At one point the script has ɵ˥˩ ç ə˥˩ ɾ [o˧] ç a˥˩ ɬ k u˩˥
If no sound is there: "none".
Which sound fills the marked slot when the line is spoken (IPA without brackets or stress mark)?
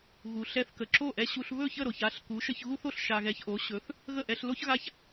o˩